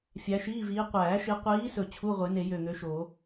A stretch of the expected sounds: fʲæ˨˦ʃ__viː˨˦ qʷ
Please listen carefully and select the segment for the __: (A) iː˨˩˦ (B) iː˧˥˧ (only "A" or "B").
B